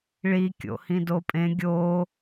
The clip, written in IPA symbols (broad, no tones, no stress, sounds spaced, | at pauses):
ɭ i kʲ o̰ h ĩ d o pʼ ẽ ɡʲ o